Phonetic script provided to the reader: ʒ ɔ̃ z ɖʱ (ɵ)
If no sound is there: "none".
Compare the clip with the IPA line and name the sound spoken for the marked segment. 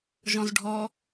ɔ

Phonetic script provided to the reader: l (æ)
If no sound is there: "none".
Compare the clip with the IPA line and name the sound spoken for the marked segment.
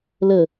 ə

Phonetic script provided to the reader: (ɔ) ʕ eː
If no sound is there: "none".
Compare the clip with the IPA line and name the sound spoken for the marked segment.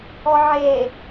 ɔ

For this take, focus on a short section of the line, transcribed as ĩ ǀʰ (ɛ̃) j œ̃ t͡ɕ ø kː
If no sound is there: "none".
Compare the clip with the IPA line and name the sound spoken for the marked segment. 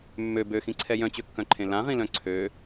ɛ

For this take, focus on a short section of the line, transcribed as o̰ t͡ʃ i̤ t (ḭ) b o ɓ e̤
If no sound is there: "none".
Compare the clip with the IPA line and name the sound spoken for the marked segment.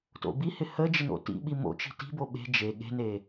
i̤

